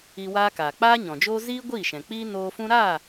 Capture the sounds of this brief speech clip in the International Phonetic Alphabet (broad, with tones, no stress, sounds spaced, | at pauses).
i˧ w aː˦ k aː˨ k͡p aː˦ ɲ ɔ̃˨ d͡ʒ oː˦ z iː˦ ɡʷ iː˦˨ ʃ ɛ̃˨ k͡p iː˦ n oː˧ f ũ˦ ɾ aː˦˨